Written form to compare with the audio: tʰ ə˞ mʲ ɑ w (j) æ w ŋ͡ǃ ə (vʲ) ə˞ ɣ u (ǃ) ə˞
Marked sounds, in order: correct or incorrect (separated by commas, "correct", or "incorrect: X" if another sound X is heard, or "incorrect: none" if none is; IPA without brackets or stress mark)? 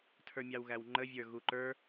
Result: incorrect: ɣ, correct, correct